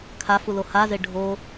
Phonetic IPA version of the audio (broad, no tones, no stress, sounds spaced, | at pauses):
kʰ a f u l o h a z e ɖʱ o